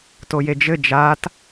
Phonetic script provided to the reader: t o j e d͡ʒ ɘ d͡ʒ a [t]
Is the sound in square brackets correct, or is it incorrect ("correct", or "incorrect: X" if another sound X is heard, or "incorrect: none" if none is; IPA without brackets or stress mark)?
correct